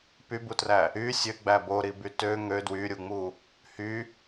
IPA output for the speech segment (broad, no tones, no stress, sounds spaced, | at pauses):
p y b u t r æ | y sʲ ø ɡ͡b æ b o ɾ i b y t ø ŋ ø d w y ɾʲ u ŋ͡m u | h y